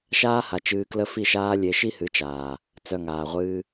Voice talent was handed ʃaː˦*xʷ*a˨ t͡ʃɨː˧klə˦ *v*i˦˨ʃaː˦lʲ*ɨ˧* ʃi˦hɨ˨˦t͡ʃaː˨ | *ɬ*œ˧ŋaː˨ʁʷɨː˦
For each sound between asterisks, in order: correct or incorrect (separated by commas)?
incorrect, incorrect, incorrect, incorrect